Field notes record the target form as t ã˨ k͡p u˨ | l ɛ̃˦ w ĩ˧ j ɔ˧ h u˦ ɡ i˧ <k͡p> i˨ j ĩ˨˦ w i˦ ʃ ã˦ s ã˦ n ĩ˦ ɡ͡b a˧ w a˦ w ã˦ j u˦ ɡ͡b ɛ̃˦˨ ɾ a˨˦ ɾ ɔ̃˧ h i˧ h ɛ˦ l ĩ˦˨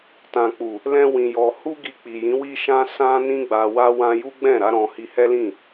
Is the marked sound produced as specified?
yes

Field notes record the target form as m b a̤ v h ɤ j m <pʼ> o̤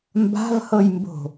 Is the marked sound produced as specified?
no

